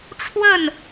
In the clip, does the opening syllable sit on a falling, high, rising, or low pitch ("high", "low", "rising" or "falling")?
falling